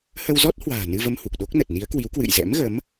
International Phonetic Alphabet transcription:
hə˧wzɔ˦˥t̚hwa̤ː˨˩ nɨ˧və˧mhu˨˩k̚ɗo˦˥k̚ nə˨˩t̚ni˨˦ə̯kwi˨˦w kwɨ̰˧˨jzɛ̰˧˥mɣə˨˦m

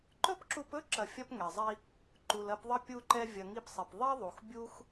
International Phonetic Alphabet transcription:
ǃɵ˦pǁu˧pɵ˦ ǁɐ˧fʲɐ˦pŋɛ˨zˤi˦ | ǃu˨lɐ˧pðˤɐ˦ pʲu˦ǃɛ˦ vʲɐ˧ŋi˦psˤi˨p ðˤi˦ðˤu˨x bʲu˦x

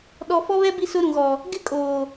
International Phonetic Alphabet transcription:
ɗɔ˨fɔ˦βɛ˦ bi˦sʊ˦ɾũ˨ ɣɔ˨ | ɡɪ˦kʼoː˨

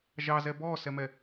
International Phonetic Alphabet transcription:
ʒɑzɛ bɔsɛmɛ

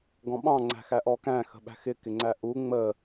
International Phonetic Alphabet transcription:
ɡɔ̃ɓɑ̃ ŋ͡ǀæ̤xæʔɔkæ̃ xə̤ɓæ̤xɪ kɪŋ͡ǀæʔu ŋ͡mə

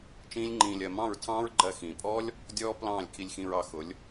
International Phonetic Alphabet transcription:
t͡ʃĩː˦lʲŋ͡ǃĩː˧lʲɜ˧ mɑ̃˦˨ɹtʰɑ̃ː˦ɹɡ͡ǃɜ˧ xĩː˨pʼɔː˦lʲ | dʲɔː˦ plɑ̃ː˦˨lʲkʰi˧lʲxĩ˧ɹ ɑ˧xʊ˨˦lʲ

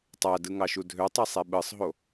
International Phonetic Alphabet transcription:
tˤædɯŋɑʃu dʱøtˤisˤe ɓɯsˤɦo

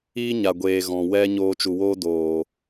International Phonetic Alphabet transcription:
iː˦ɲa˨ɡʷeː˨ ɣɔ̃˨ wɛ˦ ɲoː˧t͡ʃu˨woː˦ doː˨

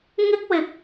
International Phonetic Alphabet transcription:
ŋɪ˥k̚wɪ˨˥k̚

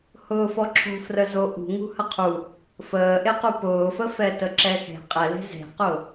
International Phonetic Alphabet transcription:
hʊːfɔǁʰo̤ frəzoʔṳ ŋṳhəqʰu | fəːʔequ pʊːfə fɛtəǁɛxe̤ qʼɛle̤ ze̤qʊ

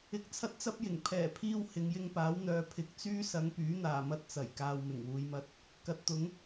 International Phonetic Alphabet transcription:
ɪ˧k̚t͡sʰɐ˥t̚t͡sɐ˥p̚jɪ˨˩ŋ pʰɛː˨˩pʰiː˧w hɪ˨˧ŋjɪ˧ŋpaː˨˥wn̪œː˨˧ pʰɪ˨k̚ t͡syː˥sɐ˨˧ŋpyː˨˥ n̪aː˨˩mɐ˧t̚ t͡sɐ˨˩jkaː˨w mɪ˨˩ŋwuː˨˧jmɐ˧t̚ | kɐ˨˥t̚t̪ʊ˨˥ŋ

